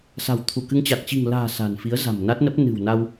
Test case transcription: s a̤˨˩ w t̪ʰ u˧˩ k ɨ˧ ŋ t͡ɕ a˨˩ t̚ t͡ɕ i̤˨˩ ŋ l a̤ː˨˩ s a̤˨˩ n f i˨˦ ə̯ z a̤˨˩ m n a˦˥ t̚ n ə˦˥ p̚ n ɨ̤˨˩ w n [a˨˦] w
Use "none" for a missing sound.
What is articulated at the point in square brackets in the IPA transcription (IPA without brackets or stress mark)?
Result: a˧